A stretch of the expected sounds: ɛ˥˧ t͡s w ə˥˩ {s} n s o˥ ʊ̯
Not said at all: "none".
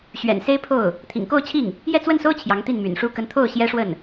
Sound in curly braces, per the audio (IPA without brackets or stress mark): none